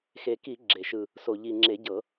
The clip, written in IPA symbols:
xe˨˩ki˧˩˧ ɡ͡ǁe˨˩ ʃɯ˨˩ | so˨˩ ʎi˨˩ŋ͡ǁe˧˩˧ɟɤ˧˩˧

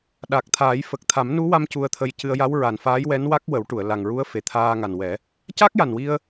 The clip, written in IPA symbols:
ɗa˨˩k̚t̪ʰaː˨˩˦jfə˨˩k̚ t̪ʰa˨˩˦mnu˧˥wa˧m cu˧ə̯t̪ʰə˧jcɨ˧ə̯ ja˧˥wɹa˨˩nfaː˧˥jwɛ˧˥n wa˦˥k̚ wə˨˩˦wʈu˨˩˨ə̯ la˨˩ŋɹu˧˥ə̯ fe˨˩t̪ʰaː˧ŋa˨˩nwɛ˨˩˦ | ca˦˥k̚ja˨˩nwi˧ə̯

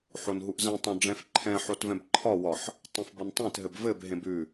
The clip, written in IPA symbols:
ħonɦuʔzɛ̃ tˤœ̃ɖ͡ʐɛ̃fǃʰɛ̃ ħotvɛ̃bǃʰɒ wɒħ | tˤɛ̃fbɒntˤẽt ɦɘbvɘb ɦẽbʉ

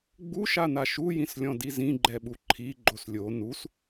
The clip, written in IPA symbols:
ɡ͡buʃana ʃujĩslʲɔ̃di zĩɡ͡ǃɛɓu ǃʰi ɡ͡ǃoslʲo nus

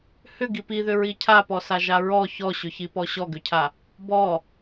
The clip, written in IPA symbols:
hʏ ɡipiðʏɹi cʰapɔsa ʒaɹɔ çɔɕʏçi pɔɕɔɡʏcʰa | bɔ

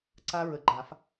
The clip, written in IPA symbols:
ǀa˦˥ɹə˨˩˦ɡ͡ǃa˨˩˦f

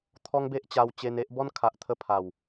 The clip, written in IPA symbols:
t̪ʰɔ˦ŋbe˦ʔ t͡ɕa˧wt͡ɕe˧ne˦ʔ bɔ˦nkʰa˨ʔ t̪ʰə˥˧ pʰa˨˩w

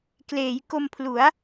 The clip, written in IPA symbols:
kleː˩˦j ko˧mpʰlu˩˦a̯

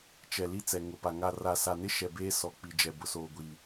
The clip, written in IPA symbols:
t͡ʃɛ˨li˦ t͡sɛ˨ŋʊ˨pa˨ ŋa˨ra˨sa˨nɪ˦ ʃɛ˨beː˦ sɔ˨k͡pi˨d͡ʒɛ˨ bʊ˨soː˨ɡʷiː˨

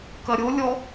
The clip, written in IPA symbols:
kɐɾʲolʲɔ

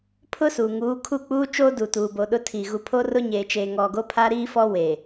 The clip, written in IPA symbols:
pʰʊ˦su˨ŋuː˨˦ kʰu˦˨k͡puː˦ t͡ʃoː˦du˨ tuː˨bo˨ ɗʊ˦tʰi˨ ɣu˨pʰo˦rʊ˦ ɲeː˨t͡ʃeː˨ŋɔ˨ɡo˦ pʰaː˦ɾiː˦fɔ˦ weː˨

